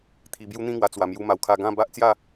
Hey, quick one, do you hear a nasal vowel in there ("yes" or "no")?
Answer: yes